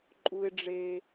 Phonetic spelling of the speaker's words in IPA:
ǃʼ u˧ ɪ̯ ɖ͡ʐ e˧

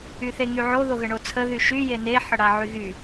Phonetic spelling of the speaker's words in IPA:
y θ e ŋ y ʕ o ð o ɣ ə ɳ o t͡sʰ ə ð y ʃ y j e n e ħ ə ɽ a ʕ y ɣ y

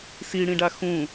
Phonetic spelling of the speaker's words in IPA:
s i ɽ ĩ ɖ a x ũ

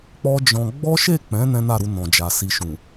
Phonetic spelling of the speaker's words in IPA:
k͡p ɔ˦ d͡ʒ ɔ̃˧ ɡ͡b ɔ˦ ʃ e˦˨ k͡p ɛ̃˨˦ n ɛ̃˦ n a˦˨ ɾ u˧ n ɔ̃˨ d͡ʒ a˨ s i˨ ʃ ũ˨

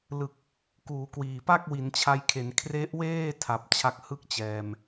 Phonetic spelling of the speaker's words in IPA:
l ɯ˨˩ k̚ | k uː˩˦ k w iː˨˩ p a˥˩ k̚ w i˩˦ n t͡ɕʰ a˧ j kʰ e˩˦ n kʰ r e˦˥ ʔ w eː˥˩ tʰ a˨˩ p̚ t͡ɕʰ a˦˥ k̚ h ɯ˥˩ k̚ t͡ɕ ɛː˨˩ m

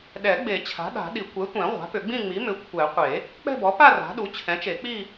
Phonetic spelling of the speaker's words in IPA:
ɗ ɛ˨˩˦ ɡ͡b e˨˩˦ t͡ɕʰ a̤˩˥ ɗ a̤˨˩˦ ɗ i˨˩˦ kʷ ɛ˩˥ tʷ ɛ̃˨˩˦ ʁʷ a̤˩˥ p ʏ˨˩˦ ɡ͡b ĩ˥˧ ŋ͡m i˩˥ m ʏ˩˥ kʷʰ ɛ˨˩˦ qʷ e˨˩˦ | k͡p ɛ̤˥˧ b ɔ˩˥ p a˥˧ r a̤˩˥ ɗ u˩˥ t͡ɕʰ ɛ̃˩˥ t͡ʃ e˨˩˦ k͡p i˥˧

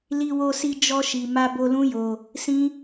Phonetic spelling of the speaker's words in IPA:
l i˧ w o˧ s i˧ d͡ʒ ɔ˧ ʃ i˨ m a˧ b o˧ l ũ˦ j o˧ | s ĩ˦

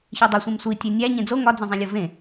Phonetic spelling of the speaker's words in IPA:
ç e dˤ o sʷ ẽ m sʷ i tʲ e nʲ æ ɲ ẽ d͡z o ŋ ɒ d͡z õ zˤ ĩ lʲ o v ẽ

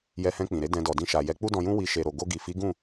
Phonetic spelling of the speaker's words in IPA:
j ɛ˧ h ɛ̃˧ k͡p ĩ˨ ɾ e˨˦ d ɛ̃˧ d ɔ˨ d ĩ˧ ʃ a˨ j ɛ˨˦ k͡p u˦ d ɔ̃˧ j ũ˦ w i˧ ʃ e˨ ɾ o˨ ɡ o˧ ɡ i˨ f i˨˦ ɡ ũ˦˨

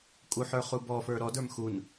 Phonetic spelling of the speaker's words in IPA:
kʼ u ħ ə˞ χ u b ɔ f ə˞ ɾ ɔ d ə˞ m x u n

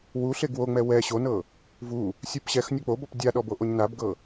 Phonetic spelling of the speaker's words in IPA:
w u ɬ e ɡ w o ŋ͡m ɛ w ɛ ɕ o n ɤ | v u | sʲ ɯ p ɕ ɛ x nʲ ɔ k͡p o b ɔ p dʲ a ɗ ɔ b o ʔ o ɲ n a b ɡ ɤ

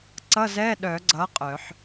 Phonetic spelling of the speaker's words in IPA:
ǀ ʌ˧˥˧ z ɛ˧˥˧ ɗ œ˨˩˦ ɡ͡ǀ ʌ˨˥ qʼ œ˨˩˦ ħ

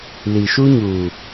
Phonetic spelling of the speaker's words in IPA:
l i˨ ʃ u˦ ɲ uː˨

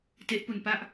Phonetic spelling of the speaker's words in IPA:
t e˦˥ ʔ p u˧ n p a˥˩ ʔ

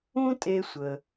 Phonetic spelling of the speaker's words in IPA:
ũ˥ tʼ e˧ sʷ ə˩

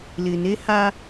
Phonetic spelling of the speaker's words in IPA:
l ɪ˨ n e˦ h a˦

